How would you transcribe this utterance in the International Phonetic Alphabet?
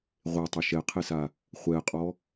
ʁʷ e tˤ ɵ ʃ ɛ qʰ e s a | χʷ ɛ qʼ ɔ

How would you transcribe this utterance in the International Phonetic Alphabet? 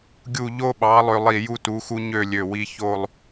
ɡʲ u˧˩ ʎ o˧ ɓ ɑ˩˧ lˠ ø˧ lˠ i˧˩ j u˧ t u˩˧ x u˧ ɲ ø˥˧ lʲ ø˧˩ w i˧ ç o˥˧ lˠ

